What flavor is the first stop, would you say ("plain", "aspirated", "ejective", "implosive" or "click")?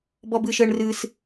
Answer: plain